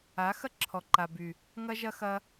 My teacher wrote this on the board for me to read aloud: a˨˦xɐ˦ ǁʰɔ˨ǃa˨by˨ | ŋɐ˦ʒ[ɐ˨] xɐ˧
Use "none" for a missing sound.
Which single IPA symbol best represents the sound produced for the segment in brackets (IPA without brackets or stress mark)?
ɐ˦